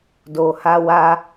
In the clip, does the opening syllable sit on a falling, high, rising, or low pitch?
low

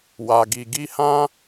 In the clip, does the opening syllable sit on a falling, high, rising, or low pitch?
low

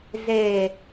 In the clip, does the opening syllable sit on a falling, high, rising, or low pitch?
low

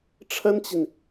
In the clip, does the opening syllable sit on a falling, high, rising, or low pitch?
high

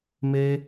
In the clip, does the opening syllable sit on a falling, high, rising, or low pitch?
high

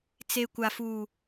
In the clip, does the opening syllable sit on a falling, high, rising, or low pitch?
low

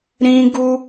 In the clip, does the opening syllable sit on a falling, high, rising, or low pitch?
high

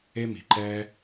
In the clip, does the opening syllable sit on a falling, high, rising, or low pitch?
high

